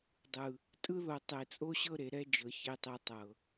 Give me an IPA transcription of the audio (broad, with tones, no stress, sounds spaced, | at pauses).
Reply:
dˤ ɯ˨ | tʼ ɯ˦ ð o˨ tˤ e˨ t͡sʼ o˦ ɕ ɤ˦ ɾ e˨ ɾ ɛ˦ d͡ʒ ɤ˨ ç e˦ tˤ e˦ tˤ ɤ˨